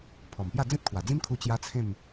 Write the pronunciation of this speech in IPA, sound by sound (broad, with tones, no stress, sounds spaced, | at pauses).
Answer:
pʰ ɔ˨˩ m p j a˥˧ d͡z ẽ˦ t̚ kʰ w a˨˩ d͡z ĩ˦ m kʰ u˧ t͡ɕ j a˦ t͡sʰ ẽ˥˧ m